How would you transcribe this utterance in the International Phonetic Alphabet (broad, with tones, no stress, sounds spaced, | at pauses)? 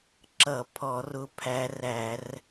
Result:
ǁ ʌ˧˩˧ pʰ ɔ˧˩˧ r ʊ˧˥ pʰ æ˧˥ r æ˧˩˧ r